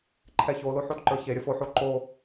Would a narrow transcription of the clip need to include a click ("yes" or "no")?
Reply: yes